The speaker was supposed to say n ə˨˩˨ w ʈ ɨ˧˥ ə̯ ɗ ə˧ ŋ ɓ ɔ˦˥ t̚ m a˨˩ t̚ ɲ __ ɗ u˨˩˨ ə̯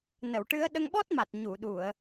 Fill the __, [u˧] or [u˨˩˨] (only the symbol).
u˨˩˨